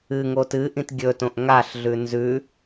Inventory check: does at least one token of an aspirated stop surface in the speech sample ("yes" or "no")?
no